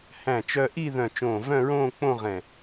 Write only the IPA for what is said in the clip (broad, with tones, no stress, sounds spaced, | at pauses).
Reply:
h æ̃˧˩ t͡ʃ œ˧ ʔ i˥˧ ð œ̃˧˩ t͡ʃ õː˧˩ v œ̃˥˧ ɹ õː˥˧ k͡p õ˥˧ ʁ ɛ̃˧˩